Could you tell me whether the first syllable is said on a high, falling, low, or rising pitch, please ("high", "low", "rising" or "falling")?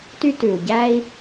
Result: high